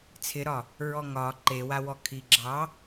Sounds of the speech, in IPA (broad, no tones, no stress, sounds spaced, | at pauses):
t͡sʰ ɪ ɾ ɒ | ɹ ɔ ŋ ɒ ǃ e w a w ɔ kʰ i ɡ͡ǁ ɑ